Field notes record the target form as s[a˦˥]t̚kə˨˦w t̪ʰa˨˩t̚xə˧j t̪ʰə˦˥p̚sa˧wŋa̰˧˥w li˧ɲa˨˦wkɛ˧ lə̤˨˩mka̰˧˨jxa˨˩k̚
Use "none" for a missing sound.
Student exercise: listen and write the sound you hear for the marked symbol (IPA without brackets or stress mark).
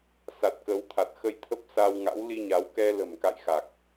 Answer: a˨˩